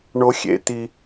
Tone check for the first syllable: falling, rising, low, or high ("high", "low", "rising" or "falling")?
high